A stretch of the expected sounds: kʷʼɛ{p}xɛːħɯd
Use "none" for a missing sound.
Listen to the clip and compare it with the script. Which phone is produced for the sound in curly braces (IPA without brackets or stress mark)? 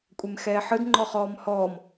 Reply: m